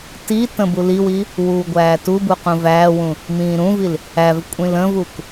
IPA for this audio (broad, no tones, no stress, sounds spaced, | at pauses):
t i t ə̃ b u l i w i | w uː ɡʷ æː t u b u q ũ v æː w ũ | m ĩː ɾ ũ v i l | æ v kʷʼ ĩ l ə̃ v u k